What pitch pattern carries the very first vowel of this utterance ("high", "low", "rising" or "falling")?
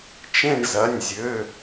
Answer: falling